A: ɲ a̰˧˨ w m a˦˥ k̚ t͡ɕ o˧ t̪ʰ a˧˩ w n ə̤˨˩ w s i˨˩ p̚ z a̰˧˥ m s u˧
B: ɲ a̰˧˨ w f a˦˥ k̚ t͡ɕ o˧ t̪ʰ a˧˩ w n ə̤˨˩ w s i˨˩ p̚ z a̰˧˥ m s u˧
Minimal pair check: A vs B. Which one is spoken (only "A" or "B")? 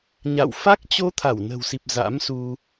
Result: B